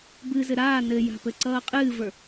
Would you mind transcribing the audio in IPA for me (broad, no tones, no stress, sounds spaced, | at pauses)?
b ɨ z ɘ ɾ aː n ɘ j a̤ p ɘ ǀ ʌː qʼ ɨː v ə˞